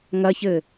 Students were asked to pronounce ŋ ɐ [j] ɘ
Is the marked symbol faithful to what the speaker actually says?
no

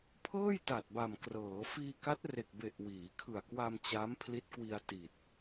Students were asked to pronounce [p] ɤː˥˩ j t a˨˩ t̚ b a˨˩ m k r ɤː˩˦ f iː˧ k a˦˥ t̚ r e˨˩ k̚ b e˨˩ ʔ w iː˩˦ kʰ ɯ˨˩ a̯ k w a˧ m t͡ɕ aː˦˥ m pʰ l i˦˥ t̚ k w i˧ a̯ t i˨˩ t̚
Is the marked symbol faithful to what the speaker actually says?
no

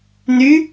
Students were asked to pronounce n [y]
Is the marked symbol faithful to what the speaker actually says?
yes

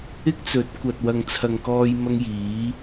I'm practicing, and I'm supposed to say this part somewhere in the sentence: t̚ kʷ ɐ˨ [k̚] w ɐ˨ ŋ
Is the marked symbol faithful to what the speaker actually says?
no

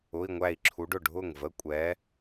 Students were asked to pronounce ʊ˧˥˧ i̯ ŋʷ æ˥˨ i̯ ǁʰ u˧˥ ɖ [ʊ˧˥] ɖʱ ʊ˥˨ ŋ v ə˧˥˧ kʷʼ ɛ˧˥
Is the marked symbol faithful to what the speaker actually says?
no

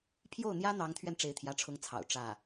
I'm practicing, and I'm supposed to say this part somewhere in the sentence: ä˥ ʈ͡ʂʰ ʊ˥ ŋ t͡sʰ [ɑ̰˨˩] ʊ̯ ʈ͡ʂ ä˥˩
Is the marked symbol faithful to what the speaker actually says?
yes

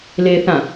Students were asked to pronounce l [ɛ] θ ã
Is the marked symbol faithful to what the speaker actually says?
no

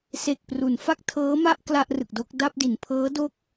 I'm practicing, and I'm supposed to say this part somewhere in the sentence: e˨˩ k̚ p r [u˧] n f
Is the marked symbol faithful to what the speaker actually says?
no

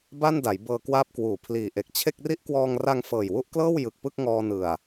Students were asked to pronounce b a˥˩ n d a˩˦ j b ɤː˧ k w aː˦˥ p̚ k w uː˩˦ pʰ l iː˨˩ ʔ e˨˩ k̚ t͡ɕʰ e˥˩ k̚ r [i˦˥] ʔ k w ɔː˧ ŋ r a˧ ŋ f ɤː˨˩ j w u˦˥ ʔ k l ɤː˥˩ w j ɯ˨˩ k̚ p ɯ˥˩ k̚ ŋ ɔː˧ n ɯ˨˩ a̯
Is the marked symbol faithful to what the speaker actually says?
yes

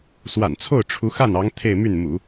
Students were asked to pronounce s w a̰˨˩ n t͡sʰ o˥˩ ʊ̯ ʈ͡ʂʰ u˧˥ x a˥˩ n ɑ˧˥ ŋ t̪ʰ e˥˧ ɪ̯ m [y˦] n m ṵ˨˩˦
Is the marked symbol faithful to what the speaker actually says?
no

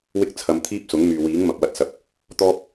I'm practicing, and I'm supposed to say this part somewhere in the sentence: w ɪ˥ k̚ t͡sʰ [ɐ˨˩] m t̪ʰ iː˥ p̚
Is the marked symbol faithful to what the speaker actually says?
no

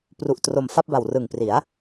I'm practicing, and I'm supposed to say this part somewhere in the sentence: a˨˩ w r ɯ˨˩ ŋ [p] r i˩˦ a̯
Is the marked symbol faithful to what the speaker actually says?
yes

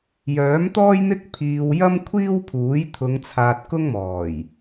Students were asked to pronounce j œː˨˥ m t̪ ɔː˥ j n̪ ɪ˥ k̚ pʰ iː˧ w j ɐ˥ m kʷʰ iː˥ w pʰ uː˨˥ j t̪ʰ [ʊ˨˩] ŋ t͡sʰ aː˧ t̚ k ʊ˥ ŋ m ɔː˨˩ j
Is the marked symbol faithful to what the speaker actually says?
no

